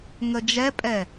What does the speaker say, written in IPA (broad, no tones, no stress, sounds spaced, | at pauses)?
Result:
ŋ ə d͡ʒ ɛ pʼ ɛ